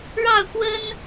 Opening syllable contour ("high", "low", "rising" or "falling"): falling